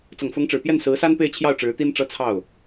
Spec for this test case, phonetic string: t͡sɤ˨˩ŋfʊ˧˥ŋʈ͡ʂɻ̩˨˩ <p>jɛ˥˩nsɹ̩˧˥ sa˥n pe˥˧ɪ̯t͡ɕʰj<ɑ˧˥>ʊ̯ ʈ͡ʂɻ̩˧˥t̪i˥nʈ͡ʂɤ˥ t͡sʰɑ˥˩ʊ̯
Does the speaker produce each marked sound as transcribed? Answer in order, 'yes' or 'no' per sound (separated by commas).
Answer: yes, no